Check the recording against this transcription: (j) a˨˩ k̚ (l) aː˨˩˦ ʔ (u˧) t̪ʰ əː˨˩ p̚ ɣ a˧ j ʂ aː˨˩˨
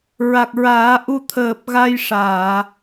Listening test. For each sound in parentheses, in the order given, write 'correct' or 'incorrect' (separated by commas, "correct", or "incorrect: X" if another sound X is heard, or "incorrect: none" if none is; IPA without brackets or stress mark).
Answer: incorrect: ɹ, incorrect: ɹ, correct